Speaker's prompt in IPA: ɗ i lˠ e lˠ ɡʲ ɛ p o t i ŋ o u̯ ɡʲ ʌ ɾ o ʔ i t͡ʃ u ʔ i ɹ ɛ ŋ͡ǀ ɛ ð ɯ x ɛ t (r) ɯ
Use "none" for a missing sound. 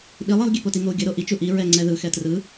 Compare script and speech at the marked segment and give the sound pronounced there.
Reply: r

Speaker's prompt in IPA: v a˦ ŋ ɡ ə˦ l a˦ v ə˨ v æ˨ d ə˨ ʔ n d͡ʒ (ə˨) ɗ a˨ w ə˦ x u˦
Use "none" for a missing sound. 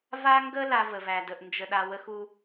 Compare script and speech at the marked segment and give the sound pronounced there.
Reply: ə˨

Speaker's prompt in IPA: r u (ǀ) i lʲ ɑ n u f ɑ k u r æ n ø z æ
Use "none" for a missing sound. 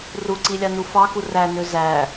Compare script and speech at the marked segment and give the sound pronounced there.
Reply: ǀ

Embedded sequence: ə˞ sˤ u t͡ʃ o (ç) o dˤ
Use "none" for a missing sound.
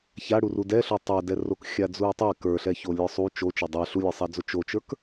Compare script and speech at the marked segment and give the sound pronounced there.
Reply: t͡ʃ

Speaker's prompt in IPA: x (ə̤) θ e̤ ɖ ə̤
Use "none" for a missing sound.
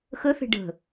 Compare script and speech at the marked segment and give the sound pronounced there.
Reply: ə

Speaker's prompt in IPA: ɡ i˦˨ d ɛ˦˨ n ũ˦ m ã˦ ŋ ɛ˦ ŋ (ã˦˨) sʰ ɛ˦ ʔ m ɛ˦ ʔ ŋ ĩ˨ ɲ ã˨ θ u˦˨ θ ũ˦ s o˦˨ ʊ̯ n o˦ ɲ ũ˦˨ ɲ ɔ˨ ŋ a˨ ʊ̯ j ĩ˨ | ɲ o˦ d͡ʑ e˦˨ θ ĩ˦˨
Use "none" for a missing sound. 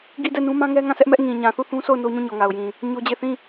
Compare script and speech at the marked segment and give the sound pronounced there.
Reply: ã˦˨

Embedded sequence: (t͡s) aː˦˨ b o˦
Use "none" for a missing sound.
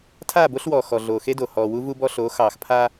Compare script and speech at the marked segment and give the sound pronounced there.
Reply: tʰ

